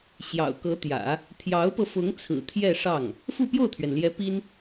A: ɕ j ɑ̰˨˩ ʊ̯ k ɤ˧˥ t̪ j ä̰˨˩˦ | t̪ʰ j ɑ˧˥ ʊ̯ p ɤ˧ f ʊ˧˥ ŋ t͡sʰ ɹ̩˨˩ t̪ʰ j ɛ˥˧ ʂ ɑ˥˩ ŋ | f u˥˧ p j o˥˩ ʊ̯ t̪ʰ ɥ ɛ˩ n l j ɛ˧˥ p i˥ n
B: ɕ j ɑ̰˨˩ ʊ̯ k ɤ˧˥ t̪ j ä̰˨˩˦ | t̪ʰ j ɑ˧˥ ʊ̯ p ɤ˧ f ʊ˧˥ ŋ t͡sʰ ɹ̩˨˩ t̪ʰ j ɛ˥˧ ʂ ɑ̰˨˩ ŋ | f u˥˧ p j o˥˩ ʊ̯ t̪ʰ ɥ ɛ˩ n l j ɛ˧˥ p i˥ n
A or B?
A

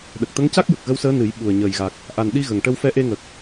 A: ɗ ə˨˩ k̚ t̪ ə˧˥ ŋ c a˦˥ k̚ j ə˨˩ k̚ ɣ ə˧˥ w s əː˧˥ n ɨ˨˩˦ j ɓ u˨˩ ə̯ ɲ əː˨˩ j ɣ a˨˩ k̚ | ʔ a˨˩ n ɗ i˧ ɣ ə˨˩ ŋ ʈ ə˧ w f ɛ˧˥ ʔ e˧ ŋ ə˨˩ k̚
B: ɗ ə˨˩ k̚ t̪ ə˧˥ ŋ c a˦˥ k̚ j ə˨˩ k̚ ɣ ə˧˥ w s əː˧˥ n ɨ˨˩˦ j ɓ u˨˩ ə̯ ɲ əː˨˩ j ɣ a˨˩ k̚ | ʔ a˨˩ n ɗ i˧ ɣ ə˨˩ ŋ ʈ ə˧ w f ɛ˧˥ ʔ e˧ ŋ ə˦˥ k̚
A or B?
A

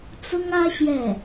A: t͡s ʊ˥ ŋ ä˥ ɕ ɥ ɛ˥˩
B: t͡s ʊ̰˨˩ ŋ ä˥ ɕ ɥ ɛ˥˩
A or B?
A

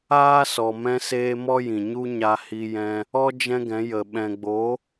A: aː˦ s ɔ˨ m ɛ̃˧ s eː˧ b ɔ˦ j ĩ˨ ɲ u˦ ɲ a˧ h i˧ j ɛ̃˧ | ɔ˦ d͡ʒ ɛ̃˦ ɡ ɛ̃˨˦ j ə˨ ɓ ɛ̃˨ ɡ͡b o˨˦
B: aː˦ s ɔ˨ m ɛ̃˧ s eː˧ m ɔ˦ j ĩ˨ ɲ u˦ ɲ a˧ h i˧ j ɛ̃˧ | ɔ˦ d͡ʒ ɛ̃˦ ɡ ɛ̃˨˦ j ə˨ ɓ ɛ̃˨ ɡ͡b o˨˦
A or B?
B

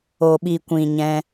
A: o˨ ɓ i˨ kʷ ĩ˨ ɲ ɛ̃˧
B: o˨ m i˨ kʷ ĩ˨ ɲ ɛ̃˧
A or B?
A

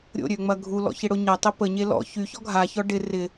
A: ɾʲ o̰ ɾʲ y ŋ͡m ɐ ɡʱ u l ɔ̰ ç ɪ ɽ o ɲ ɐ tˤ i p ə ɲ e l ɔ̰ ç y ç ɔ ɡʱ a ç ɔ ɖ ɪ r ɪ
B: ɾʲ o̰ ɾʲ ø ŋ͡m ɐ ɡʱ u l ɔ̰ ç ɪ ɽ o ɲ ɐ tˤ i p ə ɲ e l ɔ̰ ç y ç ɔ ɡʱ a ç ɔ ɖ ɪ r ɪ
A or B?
B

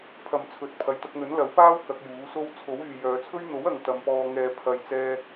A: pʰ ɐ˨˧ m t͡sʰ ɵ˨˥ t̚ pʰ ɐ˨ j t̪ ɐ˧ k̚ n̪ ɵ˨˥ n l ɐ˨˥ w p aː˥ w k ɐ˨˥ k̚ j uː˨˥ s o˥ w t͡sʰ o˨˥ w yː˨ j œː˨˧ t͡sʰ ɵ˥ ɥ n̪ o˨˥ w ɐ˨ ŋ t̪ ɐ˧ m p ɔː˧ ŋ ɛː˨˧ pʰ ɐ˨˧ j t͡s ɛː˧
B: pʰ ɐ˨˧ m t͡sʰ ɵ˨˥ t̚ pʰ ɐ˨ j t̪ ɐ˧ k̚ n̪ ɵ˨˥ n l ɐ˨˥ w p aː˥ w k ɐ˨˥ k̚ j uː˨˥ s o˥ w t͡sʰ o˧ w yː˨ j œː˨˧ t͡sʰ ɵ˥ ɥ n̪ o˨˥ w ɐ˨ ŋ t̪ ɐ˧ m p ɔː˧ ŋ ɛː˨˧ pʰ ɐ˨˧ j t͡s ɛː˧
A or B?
A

